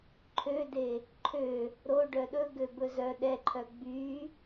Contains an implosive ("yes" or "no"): yes